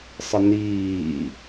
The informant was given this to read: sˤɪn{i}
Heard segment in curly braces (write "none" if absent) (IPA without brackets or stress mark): iː